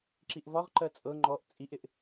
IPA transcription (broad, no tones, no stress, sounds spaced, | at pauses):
ǁ i ʔ v ɒ ʁ ǃ ɜ t͡sʼ ɤ ŋ͡ǃ ɔ ʔ t͡sʼ i ʔ ɪ ʔ